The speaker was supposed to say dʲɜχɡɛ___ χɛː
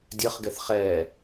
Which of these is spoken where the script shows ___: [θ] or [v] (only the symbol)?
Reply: θ